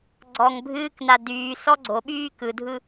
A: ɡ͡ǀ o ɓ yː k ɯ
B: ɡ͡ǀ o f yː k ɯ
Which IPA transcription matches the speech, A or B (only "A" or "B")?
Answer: A